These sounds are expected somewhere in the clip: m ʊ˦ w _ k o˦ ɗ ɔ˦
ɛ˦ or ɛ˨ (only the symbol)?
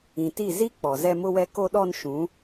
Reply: ɛ˦